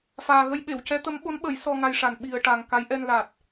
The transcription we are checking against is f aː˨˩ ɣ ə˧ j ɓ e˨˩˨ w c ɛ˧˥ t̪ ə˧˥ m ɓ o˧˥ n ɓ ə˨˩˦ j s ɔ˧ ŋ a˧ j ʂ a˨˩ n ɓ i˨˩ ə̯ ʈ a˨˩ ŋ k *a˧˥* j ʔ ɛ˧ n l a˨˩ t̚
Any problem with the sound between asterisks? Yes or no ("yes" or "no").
no